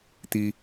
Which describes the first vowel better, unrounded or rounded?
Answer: unrounded